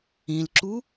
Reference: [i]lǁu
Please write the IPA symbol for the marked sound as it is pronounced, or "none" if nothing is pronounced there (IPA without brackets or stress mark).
ĩ